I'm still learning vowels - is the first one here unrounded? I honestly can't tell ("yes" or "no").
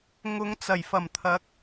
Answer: no